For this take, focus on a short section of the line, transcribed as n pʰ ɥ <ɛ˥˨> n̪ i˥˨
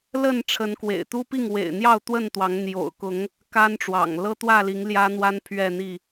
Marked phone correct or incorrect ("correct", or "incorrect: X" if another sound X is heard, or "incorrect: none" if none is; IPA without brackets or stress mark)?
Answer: correct